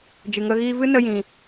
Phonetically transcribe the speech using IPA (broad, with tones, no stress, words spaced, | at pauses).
d͡ʒɨ˨ŋə˧ ɣiː˧vɨ˦ nə˦jĩ˧